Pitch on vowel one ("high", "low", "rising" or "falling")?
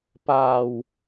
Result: low